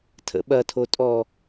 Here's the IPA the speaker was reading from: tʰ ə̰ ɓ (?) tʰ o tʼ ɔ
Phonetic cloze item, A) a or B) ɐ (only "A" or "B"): B